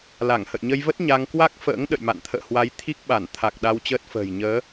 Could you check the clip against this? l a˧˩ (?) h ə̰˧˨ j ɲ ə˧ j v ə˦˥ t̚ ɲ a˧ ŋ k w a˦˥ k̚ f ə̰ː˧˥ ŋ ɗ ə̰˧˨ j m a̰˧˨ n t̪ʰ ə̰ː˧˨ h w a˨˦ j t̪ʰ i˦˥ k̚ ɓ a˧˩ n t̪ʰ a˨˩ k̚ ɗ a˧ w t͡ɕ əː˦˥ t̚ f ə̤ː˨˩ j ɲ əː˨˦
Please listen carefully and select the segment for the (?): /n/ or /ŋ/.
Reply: ŋ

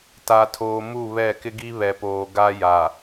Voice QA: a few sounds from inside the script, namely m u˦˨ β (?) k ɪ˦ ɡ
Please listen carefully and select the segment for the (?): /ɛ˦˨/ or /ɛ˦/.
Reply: ɛ˦˨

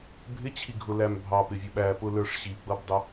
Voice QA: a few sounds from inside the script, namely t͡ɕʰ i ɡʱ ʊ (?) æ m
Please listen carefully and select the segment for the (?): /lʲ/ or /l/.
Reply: l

